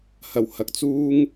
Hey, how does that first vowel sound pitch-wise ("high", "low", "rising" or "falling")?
low